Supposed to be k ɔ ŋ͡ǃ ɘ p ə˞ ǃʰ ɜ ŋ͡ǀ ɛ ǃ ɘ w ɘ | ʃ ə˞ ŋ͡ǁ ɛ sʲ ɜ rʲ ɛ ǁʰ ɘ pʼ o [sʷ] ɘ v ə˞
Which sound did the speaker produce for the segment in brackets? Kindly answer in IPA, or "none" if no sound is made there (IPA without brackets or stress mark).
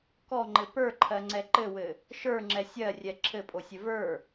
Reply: sʲ